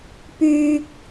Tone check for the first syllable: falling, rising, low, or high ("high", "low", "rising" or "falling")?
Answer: high